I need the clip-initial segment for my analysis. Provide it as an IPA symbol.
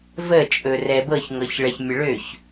v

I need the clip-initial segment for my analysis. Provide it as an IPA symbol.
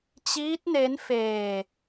t͡ɕ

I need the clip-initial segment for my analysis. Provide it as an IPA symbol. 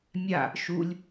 mʲ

